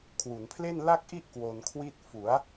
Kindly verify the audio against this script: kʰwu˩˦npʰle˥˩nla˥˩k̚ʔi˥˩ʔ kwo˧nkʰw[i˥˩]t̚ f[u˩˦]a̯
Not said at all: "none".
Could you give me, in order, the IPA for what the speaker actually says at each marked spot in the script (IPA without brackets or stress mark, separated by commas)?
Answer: i˥˩, u˩˦